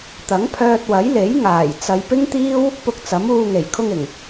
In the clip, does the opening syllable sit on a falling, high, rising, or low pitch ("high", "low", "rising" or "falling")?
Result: rising